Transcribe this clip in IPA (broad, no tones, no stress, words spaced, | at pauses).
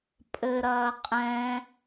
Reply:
pʼɘɾɐː qʼɛ̃